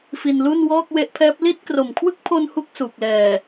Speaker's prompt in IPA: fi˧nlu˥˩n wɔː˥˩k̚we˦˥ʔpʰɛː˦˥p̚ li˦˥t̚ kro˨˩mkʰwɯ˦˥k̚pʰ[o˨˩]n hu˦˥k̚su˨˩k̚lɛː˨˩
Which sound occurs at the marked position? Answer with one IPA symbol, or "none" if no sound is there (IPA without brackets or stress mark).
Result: o˧